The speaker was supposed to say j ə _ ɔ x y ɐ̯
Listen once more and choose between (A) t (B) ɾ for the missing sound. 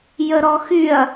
B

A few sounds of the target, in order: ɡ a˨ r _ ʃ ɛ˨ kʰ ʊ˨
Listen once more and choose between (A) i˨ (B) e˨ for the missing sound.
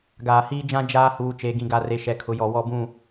B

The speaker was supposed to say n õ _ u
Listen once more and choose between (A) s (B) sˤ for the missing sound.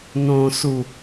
A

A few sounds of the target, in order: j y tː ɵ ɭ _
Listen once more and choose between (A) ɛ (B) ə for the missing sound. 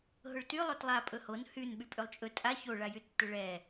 A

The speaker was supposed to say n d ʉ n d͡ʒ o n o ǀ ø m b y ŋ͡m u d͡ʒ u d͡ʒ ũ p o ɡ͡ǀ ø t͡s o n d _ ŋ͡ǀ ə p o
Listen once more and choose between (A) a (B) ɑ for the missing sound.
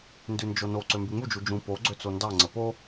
B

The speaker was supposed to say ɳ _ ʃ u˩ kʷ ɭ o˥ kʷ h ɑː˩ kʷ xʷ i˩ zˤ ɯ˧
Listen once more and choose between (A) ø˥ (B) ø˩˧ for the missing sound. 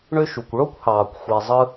A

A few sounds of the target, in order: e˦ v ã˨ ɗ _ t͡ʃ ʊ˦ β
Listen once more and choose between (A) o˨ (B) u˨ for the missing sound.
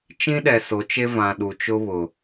B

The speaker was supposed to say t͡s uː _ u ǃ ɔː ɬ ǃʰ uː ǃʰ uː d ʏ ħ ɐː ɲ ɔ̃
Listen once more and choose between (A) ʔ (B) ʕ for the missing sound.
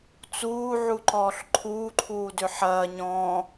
B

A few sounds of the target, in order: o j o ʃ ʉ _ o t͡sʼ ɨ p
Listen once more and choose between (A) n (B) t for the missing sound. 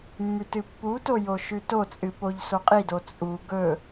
B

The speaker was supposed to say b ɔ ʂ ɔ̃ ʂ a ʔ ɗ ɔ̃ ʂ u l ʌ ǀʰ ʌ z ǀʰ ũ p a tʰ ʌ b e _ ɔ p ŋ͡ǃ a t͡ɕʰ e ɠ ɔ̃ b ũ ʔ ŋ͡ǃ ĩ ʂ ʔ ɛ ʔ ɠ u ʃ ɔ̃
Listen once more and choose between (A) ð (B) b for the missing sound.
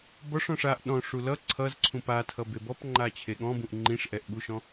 B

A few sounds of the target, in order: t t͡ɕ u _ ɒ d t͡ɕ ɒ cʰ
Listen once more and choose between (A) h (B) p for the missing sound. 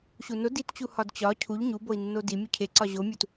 A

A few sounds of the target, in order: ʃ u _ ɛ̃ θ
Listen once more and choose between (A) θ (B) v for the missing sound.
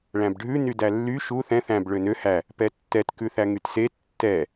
A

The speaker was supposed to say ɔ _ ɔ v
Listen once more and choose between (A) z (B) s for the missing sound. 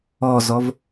A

